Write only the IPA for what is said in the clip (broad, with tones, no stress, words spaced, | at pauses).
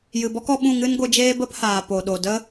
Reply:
jɨ˨bɔ˦kɔ˧ɓũ˦˨ ŋɨ˦nɡʷɨ˧d͡ʒeː˦ bə˦phaː˨ po˨ɗo˨ də˦